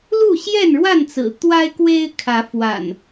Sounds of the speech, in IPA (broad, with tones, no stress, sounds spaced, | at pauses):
l u˥˨ ɕ j ɛ˥˨ n ɻ w a˥˨ n t͡s ɹ̩˨˩ t̪ w a˦ ɪ̯ k w e˦ ɪ̯ kʰ ä˨˦ f w a̰˨˩ n